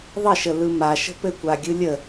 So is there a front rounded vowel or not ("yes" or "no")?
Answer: no